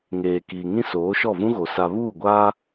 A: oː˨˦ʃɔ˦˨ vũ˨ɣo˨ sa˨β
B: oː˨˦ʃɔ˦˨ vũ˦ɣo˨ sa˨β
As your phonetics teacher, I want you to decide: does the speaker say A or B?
B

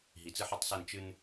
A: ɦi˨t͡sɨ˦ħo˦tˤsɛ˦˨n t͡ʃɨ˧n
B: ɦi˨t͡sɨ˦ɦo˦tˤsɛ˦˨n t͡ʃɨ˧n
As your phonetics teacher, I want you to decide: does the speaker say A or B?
A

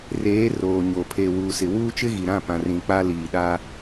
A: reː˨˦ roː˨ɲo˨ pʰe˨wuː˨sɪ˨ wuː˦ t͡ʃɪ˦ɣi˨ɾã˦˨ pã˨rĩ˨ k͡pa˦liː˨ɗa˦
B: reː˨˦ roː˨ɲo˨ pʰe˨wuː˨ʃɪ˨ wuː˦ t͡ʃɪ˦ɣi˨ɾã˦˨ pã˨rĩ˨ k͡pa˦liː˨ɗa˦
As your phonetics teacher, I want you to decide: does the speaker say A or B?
A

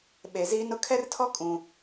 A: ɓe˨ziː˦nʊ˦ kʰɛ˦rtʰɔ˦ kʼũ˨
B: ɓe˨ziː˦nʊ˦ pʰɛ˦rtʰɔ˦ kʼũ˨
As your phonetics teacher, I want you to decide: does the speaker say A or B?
A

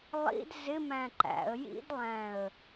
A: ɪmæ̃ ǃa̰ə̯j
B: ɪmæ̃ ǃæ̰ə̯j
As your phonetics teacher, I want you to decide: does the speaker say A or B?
B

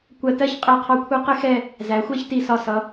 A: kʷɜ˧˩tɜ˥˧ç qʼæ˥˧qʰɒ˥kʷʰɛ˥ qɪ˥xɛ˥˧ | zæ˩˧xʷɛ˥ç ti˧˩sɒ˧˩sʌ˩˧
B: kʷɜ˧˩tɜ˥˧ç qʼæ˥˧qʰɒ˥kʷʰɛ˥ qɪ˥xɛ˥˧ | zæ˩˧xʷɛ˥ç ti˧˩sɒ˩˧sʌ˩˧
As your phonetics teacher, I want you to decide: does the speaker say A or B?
A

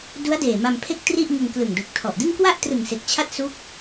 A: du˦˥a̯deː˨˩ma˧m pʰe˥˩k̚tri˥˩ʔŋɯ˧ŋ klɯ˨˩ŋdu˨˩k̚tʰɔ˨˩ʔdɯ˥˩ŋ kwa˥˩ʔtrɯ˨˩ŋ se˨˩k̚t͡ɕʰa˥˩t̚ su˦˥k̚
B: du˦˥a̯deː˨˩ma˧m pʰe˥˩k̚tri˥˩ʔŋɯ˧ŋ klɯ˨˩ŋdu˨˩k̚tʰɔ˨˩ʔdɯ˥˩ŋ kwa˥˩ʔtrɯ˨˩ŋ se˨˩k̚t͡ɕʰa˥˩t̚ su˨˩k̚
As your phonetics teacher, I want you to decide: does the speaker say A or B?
A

